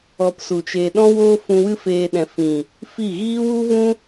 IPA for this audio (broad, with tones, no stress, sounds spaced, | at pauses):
ɔ˧ p s u˨ t͡ʃ e˧ ɗ ɔ̃˦ w oː˦ f ũ˧ w ɨ˦ f eː˦ ɗ ɛ̃˧ f ĩ˨ | f i˦˨ ɣ iː˦ w u˦ v ũ˦